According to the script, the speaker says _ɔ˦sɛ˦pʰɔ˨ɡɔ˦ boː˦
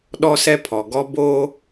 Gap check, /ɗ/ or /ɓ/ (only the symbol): ɗ